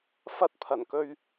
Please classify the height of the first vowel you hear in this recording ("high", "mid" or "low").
low